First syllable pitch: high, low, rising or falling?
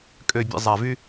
low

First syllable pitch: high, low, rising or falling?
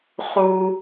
high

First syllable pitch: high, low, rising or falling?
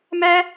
high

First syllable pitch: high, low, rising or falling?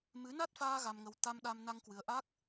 rising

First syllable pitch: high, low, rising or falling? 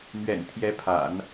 low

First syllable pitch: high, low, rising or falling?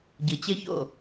low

